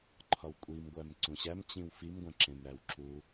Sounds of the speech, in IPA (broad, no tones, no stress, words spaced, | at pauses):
ǃʰɒwkʷʼimɡʷæm ǀũɕæmt͡ɕĩw fimɡʷæ̃ǁẽm ɾæwǁu